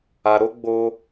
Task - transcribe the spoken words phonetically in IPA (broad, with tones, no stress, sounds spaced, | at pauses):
a˧ ɾ o˦ ɡ͡b o˦